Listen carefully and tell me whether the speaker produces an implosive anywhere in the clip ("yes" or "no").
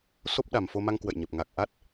yes